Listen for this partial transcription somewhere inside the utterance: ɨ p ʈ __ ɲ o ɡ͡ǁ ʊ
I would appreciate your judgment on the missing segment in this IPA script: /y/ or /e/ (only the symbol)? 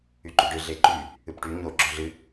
y